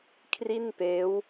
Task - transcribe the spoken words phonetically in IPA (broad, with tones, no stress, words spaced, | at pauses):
kʰri˥˩npeː˦˥w